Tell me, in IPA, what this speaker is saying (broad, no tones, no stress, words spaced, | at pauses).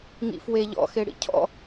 ŋḭfwe ʎɔ̰ xeɽḭcʰɔ̰